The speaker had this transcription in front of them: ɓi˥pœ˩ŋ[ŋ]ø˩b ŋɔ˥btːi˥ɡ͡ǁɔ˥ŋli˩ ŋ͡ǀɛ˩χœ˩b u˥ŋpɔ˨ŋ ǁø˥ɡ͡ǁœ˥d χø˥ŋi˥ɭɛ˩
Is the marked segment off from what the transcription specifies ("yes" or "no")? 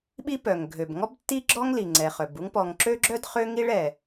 yes